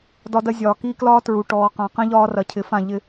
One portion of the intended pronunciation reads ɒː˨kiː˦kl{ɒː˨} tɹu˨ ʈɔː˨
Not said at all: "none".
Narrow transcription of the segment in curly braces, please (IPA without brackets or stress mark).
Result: ɒː˦